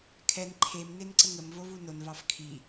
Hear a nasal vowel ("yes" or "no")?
no